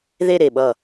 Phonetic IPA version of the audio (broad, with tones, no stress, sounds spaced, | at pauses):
ð e˥˧ ɾ e˧˩ ɓ ʌ˧˩